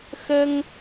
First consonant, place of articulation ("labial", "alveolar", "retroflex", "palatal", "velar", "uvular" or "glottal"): velar